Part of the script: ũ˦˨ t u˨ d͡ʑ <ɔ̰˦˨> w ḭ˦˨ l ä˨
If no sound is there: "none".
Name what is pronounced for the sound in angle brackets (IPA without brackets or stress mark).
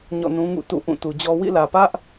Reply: ɔ˦